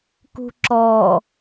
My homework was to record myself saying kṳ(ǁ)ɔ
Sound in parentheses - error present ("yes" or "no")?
no